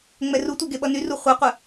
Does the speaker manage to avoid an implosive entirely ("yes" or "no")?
no